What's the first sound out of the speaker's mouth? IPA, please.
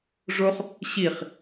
ʐ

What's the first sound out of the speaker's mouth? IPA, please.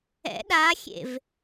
ɛ̰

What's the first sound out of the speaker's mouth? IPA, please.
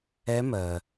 ɛ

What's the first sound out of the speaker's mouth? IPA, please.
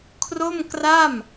kʰ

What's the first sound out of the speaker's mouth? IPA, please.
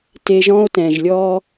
t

